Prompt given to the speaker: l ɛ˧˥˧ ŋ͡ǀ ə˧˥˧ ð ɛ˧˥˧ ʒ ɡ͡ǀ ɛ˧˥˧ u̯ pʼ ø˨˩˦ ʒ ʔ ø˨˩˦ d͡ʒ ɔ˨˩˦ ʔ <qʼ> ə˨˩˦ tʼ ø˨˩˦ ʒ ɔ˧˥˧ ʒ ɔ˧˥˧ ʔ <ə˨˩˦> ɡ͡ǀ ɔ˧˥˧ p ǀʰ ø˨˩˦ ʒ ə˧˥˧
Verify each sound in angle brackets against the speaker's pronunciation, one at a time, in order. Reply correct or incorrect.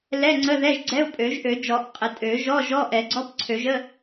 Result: correct, incorrect

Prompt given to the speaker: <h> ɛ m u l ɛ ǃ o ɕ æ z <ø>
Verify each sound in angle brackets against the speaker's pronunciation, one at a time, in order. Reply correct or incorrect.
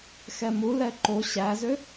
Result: incorrect, correct

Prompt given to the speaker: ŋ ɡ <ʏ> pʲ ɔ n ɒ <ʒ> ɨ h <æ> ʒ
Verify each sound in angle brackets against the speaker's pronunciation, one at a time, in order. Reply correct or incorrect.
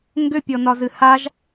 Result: correct, incorrect, incorrect

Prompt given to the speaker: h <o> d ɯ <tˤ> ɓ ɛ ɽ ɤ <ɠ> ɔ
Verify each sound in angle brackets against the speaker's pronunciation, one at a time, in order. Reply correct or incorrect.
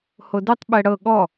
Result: correct, correct, correct

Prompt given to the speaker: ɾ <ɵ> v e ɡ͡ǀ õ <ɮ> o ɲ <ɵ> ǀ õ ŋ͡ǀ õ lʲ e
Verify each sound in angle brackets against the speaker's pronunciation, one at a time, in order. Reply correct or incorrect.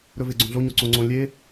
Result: correct, correct, incorrect

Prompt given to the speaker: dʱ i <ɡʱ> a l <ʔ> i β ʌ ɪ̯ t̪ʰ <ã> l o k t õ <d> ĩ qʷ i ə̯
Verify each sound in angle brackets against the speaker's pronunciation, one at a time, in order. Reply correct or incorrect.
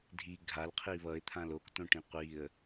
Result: correct, incorrect, correct, incorrect

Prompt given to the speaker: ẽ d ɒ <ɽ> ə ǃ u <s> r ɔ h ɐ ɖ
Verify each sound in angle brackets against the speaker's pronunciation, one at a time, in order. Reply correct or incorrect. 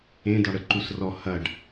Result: correct, correct

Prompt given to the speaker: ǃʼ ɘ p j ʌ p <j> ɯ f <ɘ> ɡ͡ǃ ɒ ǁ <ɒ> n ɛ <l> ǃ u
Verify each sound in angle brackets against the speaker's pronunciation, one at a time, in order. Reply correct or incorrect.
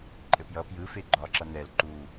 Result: correct, incorrect, incorrect, correct

